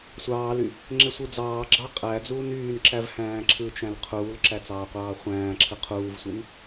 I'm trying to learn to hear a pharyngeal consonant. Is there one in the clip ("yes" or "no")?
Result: no